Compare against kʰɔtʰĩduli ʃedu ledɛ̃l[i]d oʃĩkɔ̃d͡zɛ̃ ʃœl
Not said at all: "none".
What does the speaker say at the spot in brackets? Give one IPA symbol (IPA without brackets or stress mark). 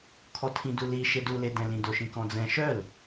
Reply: ĩ